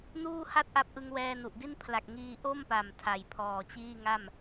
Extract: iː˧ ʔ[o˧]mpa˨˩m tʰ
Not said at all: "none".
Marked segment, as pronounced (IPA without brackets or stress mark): o˥˩